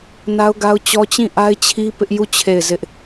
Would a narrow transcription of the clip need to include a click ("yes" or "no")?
no